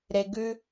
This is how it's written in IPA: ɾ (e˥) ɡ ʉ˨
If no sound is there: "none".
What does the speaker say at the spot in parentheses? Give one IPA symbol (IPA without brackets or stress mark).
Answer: e˩